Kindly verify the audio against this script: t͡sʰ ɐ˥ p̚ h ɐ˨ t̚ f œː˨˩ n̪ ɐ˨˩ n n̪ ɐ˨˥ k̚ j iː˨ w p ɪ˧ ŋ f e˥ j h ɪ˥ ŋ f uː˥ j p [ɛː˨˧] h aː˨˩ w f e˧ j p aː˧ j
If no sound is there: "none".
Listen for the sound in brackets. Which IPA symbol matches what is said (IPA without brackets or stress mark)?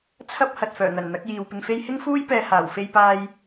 ɛː˧